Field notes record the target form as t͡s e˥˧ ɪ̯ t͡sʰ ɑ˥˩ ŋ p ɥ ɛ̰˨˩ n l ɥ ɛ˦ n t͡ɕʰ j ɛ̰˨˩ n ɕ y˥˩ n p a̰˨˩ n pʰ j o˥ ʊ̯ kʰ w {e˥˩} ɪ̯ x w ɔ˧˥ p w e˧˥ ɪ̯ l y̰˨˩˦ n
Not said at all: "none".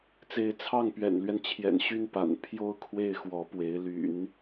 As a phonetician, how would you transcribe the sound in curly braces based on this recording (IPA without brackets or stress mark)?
e˥˩